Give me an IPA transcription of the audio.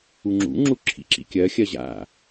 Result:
u ŋ͡ǁ ṵ ŋ͡ǁ u ǁʰ ḭ ǁ ḭ kʲ ɜ xʲ ɜ ʑ a̰

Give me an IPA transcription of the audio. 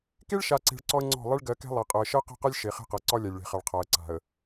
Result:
k e˦ ɭ ʃ a˨ ǀ e̤˨ ɭ ǀ ɔ˦ ə̯ ŋ͡ǀ ɔ̤˦˨ lˠ e˦ ɭ ɡ ɜ˨˦ k ɛ̤˦ lˠ ɛ˨ qʼ ɤ˨ ə̯ ʃ ɜ˦ q ɛ̤˦˨ q a˦ lʲ ʃ e˨ χ e̤˦ q ɤ˨ ǀ ɒ˦ lʲ a˨ lʲ ɭ e̤˨ χ a˨ ɭ qʰ a˨ ə̯ ǀ a̤˨ ə̯

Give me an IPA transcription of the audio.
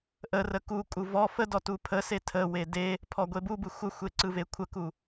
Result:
ʔ ə r ə k u kʼ u v ɔ f ə d ɔ t u pʰ ə s e tʰ ə w e d e | pʰ ɔ ɡʷ e b u b ɯ xʷ ə xʷ e ǀ ɯ v e kʷʰ ə k u

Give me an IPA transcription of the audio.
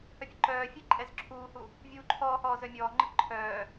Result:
h œ pʲ ə ǃ œː fʲ ɛ ǃʼ ɛ z ǁʰ uː h u | vʲ uː ǃʰ ɔː h ɔː z œ mʲ ɔː ŋ͡ǃ ə ǃʰ œː

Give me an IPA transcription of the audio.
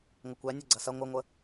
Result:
ŋʷ ə kʷ æ nʲ ɵ ɡ͡ǀ ɐ s ɐ ŋʷ ɨ ŋʷ ə

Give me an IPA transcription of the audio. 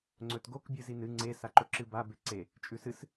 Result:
ŋ͡ǀ ɵ t ɡ o k bʲ ɨ z i n ɨ ŋ͡ǀ e s a ǃ ɵ ǁ ɨ b a b e ǀ e | t͡ʃʼ ʉ s ɨ s

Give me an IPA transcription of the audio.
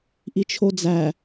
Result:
ʔ i t͡ʃʰ o d͡z æ

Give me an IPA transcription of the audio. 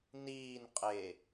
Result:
n iː n qʼ e

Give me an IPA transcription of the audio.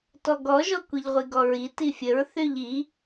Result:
t ɔ ɡ ɔ ʒ ɔ kʷ i ʎ ʁʷ i ɡ ɔ ɹ i t i fʲ ə ɹ θ y ʎ i

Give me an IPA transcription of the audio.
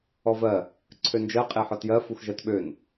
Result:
ɔ v ɜ | ǀʰ ø n d͡ʒ ɜ qʼ e ħ ɔ t j ɜ f u x ʒ ɜ t ɓ ø n

